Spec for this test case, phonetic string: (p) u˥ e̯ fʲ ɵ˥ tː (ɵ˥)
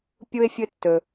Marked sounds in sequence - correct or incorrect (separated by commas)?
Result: incorrect, incorrect